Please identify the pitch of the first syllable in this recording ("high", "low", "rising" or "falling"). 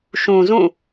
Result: low